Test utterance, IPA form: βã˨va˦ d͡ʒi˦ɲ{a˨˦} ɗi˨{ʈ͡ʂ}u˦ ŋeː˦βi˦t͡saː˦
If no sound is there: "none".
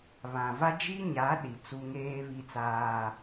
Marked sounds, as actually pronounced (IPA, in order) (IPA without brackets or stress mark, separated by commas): a˨˦, t͡s